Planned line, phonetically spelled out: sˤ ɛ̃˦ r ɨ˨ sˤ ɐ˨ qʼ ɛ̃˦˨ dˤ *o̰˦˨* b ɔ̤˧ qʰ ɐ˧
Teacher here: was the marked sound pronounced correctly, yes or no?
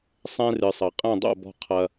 yes